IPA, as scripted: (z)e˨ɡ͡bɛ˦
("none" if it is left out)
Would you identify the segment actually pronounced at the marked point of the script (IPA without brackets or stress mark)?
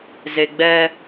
z